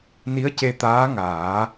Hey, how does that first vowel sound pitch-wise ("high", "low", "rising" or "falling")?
rising